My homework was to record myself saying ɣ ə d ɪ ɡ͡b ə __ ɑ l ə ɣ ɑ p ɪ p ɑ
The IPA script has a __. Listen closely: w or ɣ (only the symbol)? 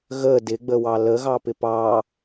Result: w